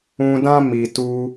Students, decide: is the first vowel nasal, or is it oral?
nasal